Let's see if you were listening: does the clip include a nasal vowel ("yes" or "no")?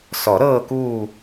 no